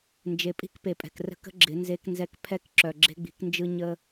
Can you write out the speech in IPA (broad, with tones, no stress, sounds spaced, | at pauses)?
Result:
n d͡ʒ e˨ pʼ i̤˦ k p e˨ pʼ ɛ̤˨ k r ə̤˦ k ə̤˦ ɡ͡ǁ ɪ˨˦ n z e˦ k n z ɛ˦ k pʰ ɛ˦ k ǁ œ˨ ɡ͡ǁ e̤˦ ɡ͡b i̤˨˦ k n d͡ʒ ɯ˦ ɲ ə˦